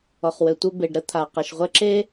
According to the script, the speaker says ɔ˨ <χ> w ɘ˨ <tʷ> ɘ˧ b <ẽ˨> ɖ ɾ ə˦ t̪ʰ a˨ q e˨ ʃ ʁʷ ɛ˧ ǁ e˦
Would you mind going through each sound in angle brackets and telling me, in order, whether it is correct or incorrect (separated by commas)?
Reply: correct, correct, incorrect